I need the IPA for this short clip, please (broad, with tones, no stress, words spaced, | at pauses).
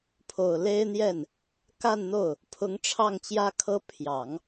pʰo˨˩ʊ̯le˥ɪ̯n̪jɛ˥˩n | ka˥˧nn̪o˥˩ʊ̯ | pʰʊ˧˥ŋʈ͡ʂʰɑ˥˩ŋt͡ɕjä˥kʰɤ˥ pʰjɑ˨˩˦ŋ